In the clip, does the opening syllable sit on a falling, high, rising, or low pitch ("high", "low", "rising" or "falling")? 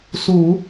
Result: low